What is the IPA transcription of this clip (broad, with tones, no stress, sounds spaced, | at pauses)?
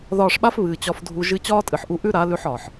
ð ɒː˧ ʂ ɓ a˦ f β ɨː˨ t͡ɕ ɒ˧ f dʱ u˧ ʒ ɨ˦ t͡ɕ ɒː˦ tʼ ɨ˨ ħ ʔ u˧ ʔ ʉ˦ ɾ a˨˦ l ʉ˧ ħ ɒː˨ ħ